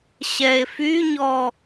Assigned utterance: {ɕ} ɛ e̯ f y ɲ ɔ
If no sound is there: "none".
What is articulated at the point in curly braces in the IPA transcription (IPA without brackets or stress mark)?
ɕ